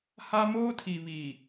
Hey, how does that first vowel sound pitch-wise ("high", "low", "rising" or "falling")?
high